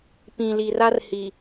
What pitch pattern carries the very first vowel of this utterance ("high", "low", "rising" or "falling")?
low